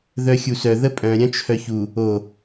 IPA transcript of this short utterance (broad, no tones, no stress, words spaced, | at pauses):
ðœxʲusœ ðəpʼœ̃ ɾʲœ̃t͡ʃʰœçu | o